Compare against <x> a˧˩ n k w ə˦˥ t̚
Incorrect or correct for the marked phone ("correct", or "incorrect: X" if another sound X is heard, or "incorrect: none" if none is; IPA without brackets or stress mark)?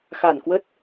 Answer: correct